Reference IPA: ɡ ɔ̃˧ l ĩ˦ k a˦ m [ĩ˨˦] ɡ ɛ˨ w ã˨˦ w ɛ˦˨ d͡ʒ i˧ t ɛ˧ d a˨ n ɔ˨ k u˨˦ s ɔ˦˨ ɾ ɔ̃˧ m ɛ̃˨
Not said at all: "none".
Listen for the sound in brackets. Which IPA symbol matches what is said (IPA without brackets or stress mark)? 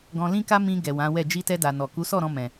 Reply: ĩ˧